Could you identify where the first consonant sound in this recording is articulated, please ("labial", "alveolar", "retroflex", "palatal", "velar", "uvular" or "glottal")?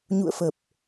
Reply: palatal